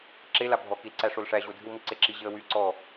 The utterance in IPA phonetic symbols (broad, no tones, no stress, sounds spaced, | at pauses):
ǁ e l a bʱ ɔ k i l ǀ æ ʂ o l ʂ æ ʑ o dʱ ɨ w m i ǀ e ǁ i ʑ ɪ ə̯ w y ǀ ɔ